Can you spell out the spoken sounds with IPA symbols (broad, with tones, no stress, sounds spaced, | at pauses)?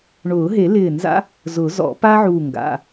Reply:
ɳ ʊː˨˩˦ ɦ e˨˩˦ l ɪː˧˩ n z a̰˥ | z ʊ˨˩˦ z ɔ̰˨˩˦ p a˥ ʕ uː˧˩ ŋ ɡ a̰˩˧˩